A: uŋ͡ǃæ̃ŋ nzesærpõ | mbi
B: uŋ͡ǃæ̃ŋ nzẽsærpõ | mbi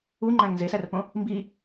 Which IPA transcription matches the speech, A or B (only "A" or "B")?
A